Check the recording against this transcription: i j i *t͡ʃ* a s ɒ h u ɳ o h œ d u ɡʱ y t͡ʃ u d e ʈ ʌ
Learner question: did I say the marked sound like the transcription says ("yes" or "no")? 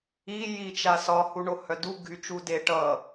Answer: yes